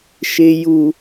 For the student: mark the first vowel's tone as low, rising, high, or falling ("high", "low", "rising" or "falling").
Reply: low